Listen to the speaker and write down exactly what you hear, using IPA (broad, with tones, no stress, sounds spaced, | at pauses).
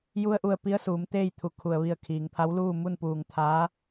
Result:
j u˧ ə̯ ʔ u˧˩ ə̯ p i˧˥ ə̯ s uː˩˧ m t̪ eː˥˨ j t̪ʰ u˩˧ kʰ u˩ ə̯ ʋ i˧˩ ə̯ kʰ iː˩ ŋ pʰ a˧˥ w l uː˥˨ m u˥˨ n p uː˧˩ ŋ t̪ʰ aː˧˥